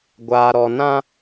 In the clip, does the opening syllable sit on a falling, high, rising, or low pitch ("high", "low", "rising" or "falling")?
low